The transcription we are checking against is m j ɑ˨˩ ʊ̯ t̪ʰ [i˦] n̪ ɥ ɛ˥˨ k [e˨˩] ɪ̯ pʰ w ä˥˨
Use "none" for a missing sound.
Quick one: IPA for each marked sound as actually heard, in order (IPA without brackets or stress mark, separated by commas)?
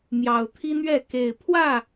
i˦, e˨˩